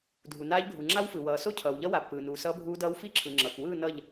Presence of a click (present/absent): present